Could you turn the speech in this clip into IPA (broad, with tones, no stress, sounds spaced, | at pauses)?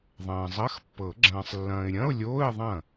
ðˤ ɐ̃ː˨ zˤ ɐ˧˥˧ x pː ɤ˨˩˦ ɡ͡ǁ ɐ̃ː˨ sˤ lː ɐ̃ː˨ ɪ̯ ɾʲ ɐ̃˧˥˧ ʊ̯ lʲ oː˧˥˧ ɪ̯ ðˤ ɐ̃˥˩